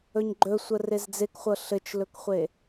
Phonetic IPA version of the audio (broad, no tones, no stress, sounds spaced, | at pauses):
ɵ ɲ ɡ͡ǃ ɵ sʷ ə r e z d͡z e k χʷ ɤ ɬ ɘ t͡ʃ l ɵ k χʷ e